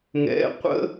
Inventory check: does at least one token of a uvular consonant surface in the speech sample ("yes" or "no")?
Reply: yes